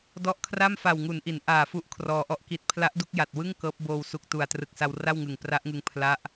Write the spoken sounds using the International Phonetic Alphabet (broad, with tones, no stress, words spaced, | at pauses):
dɔ˦˥ʔkʰra˥˩m fa˨˩wŋu˩˦n ʔi˩˦n ʔaː˨˩fu˦˥ʔ kʰrɔː˧ʔɔ˥˩ʔki˦˥t̚ pʰla˦˥ʔdu˥˩k̚ja˨˩t̚wɯ˥˩ŋ kɤː˦˥p̚ boː˧w su˨˩k̚tu˨˩a̯trɯ˨˩k̚sa˧w ra˥˩wŋɯ˨˩ŋpra˦˥ʔŋɯ˧ŋ pʰla˦˥ʔ